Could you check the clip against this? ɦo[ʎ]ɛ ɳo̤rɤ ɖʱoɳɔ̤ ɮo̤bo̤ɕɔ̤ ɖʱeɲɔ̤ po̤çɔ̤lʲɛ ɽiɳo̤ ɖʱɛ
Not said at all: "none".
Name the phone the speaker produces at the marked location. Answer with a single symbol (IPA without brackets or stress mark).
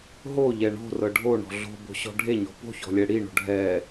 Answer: ʎ